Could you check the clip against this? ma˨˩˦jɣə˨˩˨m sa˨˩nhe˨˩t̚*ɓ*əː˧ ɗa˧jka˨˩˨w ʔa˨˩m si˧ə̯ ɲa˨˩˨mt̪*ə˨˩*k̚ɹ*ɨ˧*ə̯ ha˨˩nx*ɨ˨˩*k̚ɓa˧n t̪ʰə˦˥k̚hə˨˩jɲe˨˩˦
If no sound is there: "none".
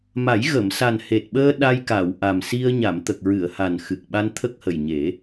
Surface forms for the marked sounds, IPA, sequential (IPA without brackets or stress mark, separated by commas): ɓ, ə˨˩, ɨ˨˩˨, ɨ˨˩